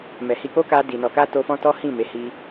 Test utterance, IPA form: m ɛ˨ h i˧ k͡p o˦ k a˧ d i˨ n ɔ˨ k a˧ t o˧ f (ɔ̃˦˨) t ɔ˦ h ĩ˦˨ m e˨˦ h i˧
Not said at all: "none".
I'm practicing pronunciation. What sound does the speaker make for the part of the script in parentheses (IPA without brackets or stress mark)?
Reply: ɔ̃˦